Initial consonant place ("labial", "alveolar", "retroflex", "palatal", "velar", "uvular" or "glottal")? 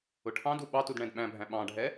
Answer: retroflex